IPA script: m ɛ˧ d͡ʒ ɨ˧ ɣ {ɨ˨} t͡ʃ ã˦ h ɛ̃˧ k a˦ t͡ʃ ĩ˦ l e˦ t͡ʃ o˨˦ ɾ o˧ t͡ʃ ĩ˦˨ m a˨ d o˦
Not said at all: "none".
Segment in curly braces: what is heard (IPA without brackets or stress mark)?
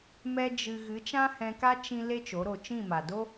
ɨ˨˦